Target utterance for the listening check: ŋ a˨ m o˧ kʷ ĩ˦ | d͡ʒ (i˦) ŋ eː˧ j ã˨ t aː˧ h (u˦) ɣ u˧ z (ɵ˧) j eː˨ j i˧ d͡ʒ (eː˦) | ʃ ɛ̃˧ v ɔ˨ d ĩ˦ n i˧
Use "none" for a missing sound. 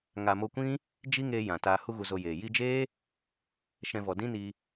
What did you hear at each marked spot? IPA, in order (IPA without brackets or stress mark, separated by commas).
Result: i˦, u˦, o˧, eː˦